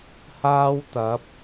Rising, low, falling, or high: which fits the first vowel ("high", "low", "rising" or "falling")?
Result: high